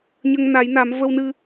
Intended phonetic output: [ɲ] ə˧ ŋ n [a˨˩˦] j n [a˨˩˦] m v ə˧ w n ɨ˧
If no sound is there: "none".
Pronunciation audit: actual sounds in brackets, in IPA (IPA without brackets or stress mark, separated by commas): ɲ, a˨˩˦, a˨˩˦